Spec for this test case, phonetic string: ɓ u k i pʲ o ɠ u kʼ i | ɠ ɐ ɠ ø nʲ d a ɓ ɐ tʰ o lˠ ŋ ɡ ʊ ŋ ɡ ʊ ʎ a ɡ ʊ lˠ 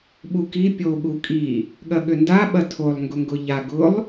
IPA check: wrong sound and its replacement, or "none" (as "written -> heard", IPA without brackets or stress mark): nʲ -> n